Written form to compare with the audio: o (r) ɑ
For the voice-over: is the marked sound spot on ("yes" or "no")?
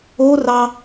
yes